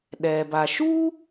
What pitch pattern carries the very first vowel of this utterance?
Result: low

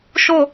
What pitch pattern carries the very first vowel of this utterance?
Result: falling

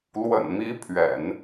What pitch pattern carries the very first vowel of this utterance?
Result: low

